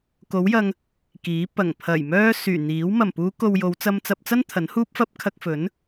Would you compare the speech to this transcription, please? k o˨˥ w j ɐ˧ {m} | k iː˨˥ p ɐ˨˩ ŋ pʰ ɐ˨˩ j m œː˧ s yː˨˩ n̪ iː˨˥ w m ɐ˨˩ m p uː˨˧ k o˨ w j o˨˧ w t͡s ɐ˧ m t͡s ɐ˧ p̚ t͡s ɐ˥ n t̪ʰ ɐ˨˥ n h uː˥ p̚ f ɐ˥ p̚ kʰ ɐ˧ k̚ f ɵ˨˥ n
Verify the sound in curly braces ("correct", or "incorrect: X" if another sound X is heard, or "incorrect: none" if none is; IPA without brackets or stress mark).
incorrect: ŋ